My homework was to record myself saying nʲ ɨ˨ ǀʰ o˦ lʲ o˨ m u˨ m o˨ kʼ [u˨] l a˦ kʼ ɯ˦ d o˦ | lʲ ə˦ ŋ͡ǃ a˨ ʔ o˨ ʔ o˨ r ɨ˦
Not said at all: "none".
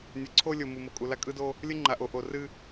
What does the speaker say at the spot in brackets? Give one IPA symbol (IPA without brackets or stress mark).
u˨